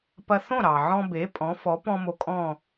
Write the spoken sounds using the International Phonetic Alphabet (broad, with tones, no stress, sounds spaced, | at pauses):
p ɐ˧ θ õ˥˩ ɾ ɑ˩ ʕ ɔ̃˧ b e˩˥ pʼ ɔ̃˩˥ f ɔ˩˥ p ɔ̃˥ m o˧ kʼ ɔ̃˥˩